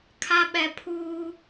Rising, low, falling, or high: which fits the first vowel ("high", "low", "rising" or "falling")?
high